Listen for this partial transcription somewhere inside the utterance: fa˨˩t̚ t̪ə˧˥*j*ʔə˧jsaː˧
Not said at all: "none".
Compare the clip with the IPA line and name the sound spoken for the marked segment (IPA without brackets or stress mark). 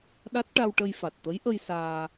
j